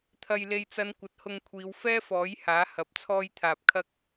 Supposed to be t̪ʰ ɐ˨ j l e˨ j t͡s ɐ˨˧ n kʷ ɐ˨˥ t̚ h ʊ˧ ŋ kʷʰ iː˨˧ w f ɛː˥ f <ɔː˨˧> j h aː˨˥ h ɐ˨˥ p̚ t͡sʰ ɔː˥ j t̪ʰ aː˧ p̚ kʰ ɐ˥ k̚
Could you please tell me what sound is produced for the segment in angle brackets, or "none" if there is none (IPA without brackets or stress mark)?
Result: ɔː˨˥